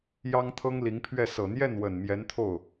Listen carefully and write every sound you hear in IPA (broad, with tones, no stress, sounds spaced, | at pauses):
j ɑ˥ ŋ t̪ʰ ɤ˥ ŋ l i˧˥ ŋ pʰ ɥ ɛ˥˩ s ɤ˨˩ n̪ j ɛ˥˩ n w ə˨˩ n m j ɛ˧˥ n t̪ʰ o˥˩ ʊ̯